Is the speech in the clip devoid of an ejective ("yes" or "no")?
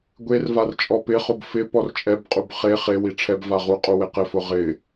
no